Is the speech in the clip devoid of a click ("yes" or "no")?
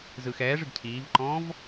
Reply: no